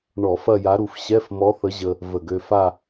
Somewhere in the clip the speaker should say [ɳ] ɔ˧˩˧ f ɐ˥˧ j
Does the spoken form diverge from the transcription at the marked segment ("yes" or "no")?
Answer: no